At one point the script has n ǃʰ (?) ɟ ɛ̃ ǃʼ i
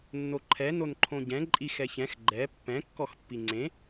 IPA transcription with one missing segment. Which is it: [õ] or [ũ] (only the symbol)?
õ